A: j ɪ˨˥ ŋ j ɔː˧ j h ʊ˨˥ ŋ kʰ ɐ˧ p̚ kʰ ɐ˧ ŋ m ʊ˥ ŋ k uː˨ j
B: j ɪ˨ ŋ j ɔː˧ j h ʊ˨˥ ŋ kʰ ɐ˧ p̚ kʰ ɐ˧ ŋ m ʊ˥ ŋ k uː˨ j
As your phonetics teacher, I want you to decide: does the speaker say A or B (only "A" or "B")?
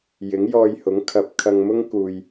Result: A